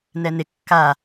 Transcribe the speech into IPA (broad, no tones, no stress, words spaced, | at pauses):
nɛnɪ kːa